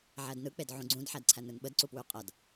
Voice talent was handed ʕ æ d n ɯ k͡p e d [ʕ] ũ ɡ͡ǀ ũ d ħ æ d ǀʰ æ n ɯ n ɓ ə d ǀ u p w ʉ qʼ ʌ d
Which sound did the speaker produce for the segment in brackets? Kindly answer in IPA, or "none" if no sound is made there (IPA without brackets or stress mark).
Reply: ʕ